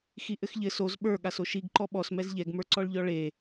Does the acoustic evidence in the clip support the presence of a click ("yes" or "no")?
yes